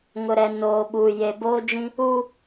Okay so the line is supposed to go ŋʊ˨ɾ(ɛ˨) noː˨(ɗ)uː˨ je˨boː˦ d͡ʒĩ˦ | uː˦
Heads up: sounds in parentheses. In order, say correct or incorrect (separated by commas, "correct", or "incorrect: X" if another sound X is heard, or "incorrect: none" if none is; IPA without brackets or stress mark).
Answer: correct, incorrect: ɓ